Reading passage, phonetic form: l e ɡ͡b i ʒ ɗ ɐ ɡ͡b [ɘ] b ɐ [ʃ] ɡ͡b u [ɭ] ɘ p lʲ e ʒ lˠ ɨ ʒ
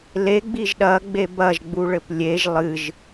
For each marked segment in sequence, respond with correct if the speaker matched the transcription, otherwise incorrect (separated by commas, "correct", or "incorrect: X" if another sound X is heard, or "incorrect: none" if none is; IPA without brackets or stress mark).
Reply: incorrect: e, incorrect: ʒ, correct